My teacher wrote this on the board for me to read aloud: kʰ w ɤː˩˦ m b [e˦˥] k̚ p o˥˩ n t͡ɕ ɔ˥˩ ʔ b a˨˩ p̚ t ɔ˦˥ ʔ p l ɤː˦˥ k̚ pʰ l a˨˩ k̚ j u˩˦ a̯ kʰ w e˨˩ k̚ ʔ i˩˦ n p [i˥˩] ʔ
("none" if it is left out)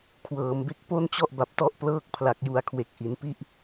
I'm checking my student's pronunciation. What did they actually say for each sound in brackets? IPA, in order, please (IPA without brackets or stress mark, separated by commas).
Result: e˦˥, i˥˩